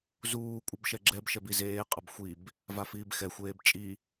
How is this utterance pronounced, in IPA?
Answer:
z uː kʷʼ ʌ b ʃ ɛ ɡ͡ǁ ɛ b ʃ ɛ b i z eː qʼ ʌ b xʷ i b | v a f iː b x ɛ xʷ eː b t͡ʃʼ i

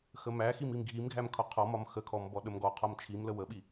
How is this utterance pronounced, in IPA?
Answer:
x ə m æ x i m i m ɡʱ i m ɡʱ æ m kʰ ɒ qʰ ɔ m ɒ m x ə kʰ ɔ m b ɔ ɗ ə m ɡ ɔ qʰ ɒ m t͡ʃʰ i m l ə w ə ɓ i

